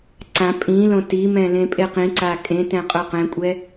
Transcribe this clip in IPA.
ǀ ã pʼ ĩ l õ t i m ɛ̃ l ẽ pʼ e q ĩ ǀ a kʼ ẽ t ɛ̃ qʼ o q ɛ̃ kʷʼ ɛ

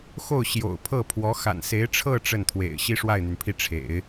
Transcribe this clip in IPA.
x o˥˩ ʊ̯ ɕ j o̰˨˩ ʊ̯ pʰ ɤ˥˩ pʰ w ɔ˧˥ x a̰˨˩ n s e˧˥ ɪ̯ ʈ͡ʂʰ ɤ˥˧ ʈ͡ʂ ə˥˩ n t̪ʰ w ḛ˨˩ ɪ̯ ɕ i˥ ʂ w a˥˩ ɪ̯ n̪ y˩ n pʰ i˥˩ ʈ͡ʂʰ ḛ˨˩˦ ɪ̯

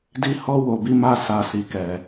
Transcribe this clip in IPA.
d i˧ h ɔ˧ w o˨ b i˧ m a˧ s a˨ s i˨ k ɛ˨

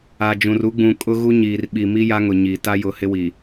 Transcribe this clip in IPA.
a˨ d͡ʒ ũ˨ r u˦ ɡ͡b ũ˨ kʼ ʊ˦ ɣ u˦ ɲ iː˨ r ɓ i˨ m i˦ j a˦ ŋ ʊ˨ ɲ i˨ t a˦ j ʊ˨ h ɪ˦ w i˨

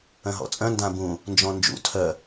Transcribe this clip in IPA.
œ̃ ɦ ɔ̰ t͡sʼ œ̃ n d ã b ũ | n d͡ʒ ɔ̃ n d͡ʒ ṵ tʰ œ

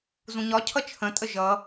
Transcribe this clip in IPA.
z ũ ɲ ɒ cʰ ʌ t͡ʃʰ ə̃ tʼ ə ʒ ʌ

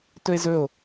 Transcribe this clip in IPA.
t ɵ e̯ z ɵ o̯

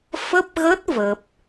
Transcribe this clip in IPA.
f ə˦˥ p̚ ɣ ə˦˥ t̚ v ə˦˥ p̚

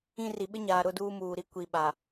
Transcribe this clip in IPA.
ĩ˦˨ r i˨ ɓ ɪ˦ ɲ aː˨ ɾ ʊ˦˨ d uː˦ m uː˨ ɾ i˦ kʷ i˨ ɓ a˨

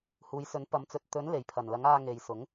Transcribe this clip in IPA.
h uː˨˧ j s ɵ˨˥ n p ɐ˨˥ m t͡s ɵ˨ t̚ t̪ ɵ˨˥ n l e˨˩ j pʰ ɐ˨˩ n l ɐ˨˥ ŋ aː˧ ŋ e˨ j s ʊ˨˥ ŋ

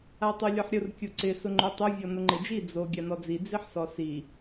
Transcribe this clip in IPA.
a tˤ u lʲ ɔ ħ ɾʲ ʊ r kʲ u ǀ ɪ s ʊ ŋ͡ǃ o tˤ ʊ vʲ ɔ n ʊ ŋ͡ǃ e d͡ʒ i d͡z o ɡʲ a n ɔ d͡z i d͡z i ħ s ɔ s i

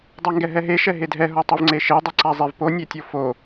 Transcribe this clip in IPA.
dˤ a ŋ ɡ ɛ ɦ ɛ ɦ e ʃ ɛ ɦ e dʱ ɛ ɦ o tˤ o v ŋ͡ǀ e ʃ e dˤ i ǀ a zˤ e v p o nʲ e tʲ o f o

